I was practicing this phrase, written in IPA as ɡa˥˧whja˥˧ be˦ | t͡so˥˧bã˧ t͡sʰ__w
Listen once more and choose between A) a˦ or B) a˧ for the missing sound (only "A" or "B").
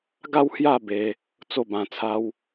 A